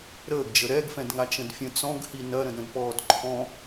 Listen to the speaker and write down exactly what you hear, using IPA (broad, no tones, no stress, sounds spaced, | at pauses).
ɾ əː ɡ d͡ʒ ə ɾ ɛ ɡ f ɛ̃ d ŋ a t͡ʃ ə̃ d fʲ ə̃ t͡s ɔ̃ ɡ h i n ɐ ɾ ə̃ d ɾ ə̃ d p ɔː d ǃʰ ɔ̃